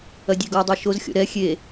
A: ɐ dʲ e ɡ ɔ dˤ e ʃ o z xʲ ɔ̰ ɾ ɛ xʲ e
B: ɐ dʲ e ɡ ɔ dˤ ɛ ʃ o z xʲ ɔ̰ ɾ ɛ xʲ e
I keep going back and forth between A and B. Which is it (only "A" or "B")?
A